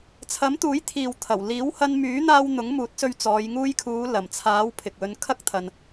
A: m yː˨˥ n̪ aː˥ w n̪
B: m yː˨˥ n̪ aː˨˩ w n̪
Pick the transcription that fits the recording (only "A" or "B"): A